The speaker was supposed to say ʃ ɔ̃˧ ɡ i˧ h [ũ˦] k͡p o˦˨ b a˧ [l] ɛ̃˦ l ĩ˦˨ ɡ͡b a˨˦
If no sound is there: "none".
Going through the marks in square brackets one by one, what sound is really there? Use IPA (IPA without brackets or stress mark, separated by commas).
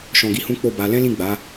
ũ˦, l